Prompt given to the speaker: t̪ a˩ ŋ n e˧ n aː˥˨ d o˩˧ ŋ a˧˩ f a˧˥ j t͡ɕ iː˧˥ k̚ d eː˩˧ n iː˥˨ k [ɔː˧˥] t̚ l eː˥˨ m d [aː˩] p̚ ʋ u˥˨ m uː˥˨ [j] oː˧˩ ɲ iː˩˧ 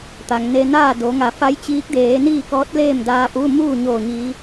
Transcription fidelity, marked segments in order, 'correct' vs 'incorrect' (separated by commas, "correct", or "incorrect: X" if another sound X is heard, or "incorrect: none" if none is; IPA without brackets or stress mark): correct, incorrect: aː˧, incorrect: ɲ